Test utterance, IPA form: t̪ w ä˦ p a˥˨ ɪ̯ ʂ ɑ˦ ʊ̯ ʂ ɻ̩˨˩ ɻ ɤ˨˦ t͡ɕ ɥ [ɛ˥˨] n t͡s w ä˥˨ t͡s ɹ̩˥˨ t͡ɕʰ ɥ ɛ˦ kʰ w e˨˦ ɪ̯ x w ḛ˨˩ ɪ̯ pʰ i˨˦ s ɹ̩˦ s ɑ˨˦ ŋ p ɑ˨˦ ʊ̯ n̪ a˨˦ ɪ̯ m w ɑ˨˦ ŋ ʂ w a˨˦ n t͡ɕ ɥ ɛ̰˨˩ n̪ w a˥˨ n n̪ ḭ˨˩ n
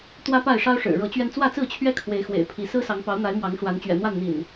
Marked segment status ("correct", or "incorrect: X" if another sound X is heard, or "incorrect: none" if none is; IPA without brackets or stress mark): incorrect: ɛ˧